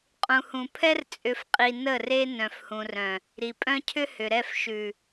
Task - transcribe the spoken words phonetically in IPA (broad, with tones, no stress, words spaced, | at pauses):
qʼũ˨hũ˨pʰɛ˦r t͡sʼʏ˨fqʼi˨ nə˦˨re˦ nœ̃˨fhũ˨rœ̃˨ | ɾi˨pʼœ̃˦cʰʏ˦ hʏ˨ɾɛ˦˨f ʃʉ˨